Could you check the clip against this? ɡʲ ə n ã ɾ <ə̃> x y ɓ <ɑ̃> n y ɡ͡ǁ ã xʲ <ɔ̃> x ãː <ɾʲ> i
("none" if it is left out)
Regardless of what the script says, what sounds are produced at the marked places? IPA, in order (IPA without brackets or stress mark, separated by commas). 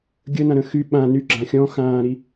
ə̃, ã, ɔ̃, ɾ